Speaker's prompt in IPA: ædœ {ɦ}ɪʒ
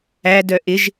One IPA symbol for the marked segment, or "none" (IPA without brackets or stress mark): ʔ